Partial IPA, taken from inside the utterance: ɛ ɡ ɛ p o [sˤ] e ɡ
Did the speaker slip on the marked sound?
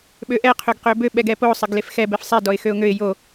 no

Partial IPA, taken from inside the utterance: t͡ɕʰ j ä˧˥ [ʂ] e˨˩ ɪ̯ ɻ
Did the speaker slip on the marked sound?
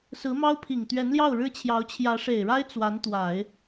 no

